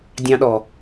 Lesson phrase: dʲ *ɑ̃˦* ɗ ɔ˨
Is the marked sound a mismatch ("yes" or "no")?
no